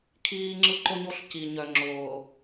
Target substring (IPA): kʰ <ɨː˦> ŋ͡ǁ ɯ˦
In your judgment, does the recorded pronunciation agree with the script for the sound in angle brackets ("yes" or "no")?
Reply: no